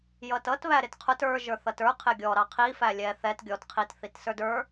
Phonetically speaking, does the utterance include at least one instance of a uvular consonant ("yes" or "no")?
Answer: yes